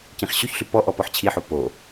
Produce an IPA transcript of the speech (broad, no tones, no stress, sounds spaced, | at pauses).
c ĩ χ ɕ y ç ɬ y p ɔ ʔ ɔ p ɔ ħ t͡ɕʰ i ħ o p o